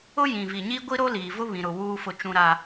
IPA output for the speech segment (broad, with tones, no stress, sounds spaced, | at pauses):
ʊ˦ j ĩ˨ v i˨ ɲ i˦ ɡʷ i˦ ɾ o˦ l iː˨ v ʊ˦ β ĩ˨ ɾ ʊ˨ w uː˦ f ʊ˦˨ t͡ʃ ũ˦ ɾ a˦